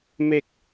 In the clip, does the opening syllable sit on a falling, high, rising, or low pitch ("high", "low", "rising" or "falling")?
low